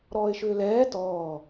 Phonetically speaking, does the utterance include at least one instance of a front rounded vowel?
yes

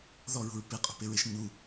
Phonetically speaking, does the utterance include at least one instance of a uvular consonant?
yes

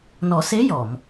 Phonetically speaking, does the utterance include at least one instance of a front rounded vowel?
no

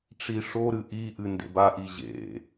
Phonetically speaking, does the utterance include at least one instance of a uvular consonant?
no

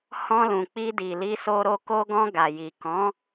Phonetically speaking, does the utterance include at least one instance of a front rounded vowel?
no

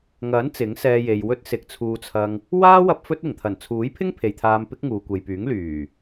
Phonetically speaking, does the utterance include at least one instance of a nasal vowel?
no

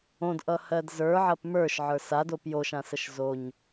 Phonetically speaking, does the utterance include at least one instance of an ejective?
no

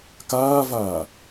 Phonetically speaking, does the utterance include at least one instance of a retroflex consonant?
no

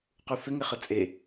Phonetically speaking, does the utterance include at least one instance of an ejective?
yes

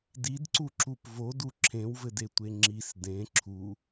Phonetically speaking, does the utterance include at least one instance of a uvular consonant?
no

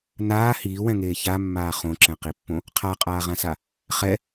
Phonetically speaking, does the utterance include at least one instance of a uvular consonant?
yes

